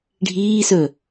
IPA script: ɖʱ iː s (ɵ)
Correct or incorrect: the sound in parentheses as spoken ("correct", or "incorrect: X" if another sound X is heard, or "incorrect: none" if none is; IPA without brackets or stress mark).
correct